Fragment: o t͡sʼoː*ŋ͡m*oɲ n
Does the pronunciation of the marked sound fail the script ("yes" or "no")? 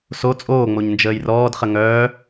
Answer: no